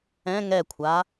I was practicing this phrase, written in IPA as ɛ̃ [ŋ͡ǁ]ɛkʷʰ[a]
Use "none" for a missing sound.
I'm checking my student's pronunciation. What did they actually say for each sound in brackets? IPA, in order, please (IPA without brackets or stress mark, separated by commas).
ŋ, a